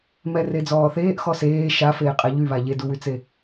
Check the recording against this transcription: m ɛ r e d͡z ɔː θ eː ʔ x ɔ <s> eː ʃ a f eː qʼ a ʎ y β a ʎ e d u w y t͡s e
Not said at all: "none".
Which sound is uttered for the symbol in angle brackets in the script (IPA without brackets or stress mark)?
s